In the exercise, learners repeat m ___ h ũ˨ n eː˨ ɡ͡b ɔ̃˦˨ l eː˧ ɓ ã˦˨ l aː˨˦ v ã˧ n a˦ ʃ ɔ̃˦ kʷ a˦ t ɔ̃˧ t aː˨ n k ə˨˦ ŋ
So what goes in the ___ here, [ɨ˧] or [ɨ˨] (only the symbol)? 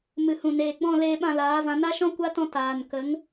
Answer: ɨ˨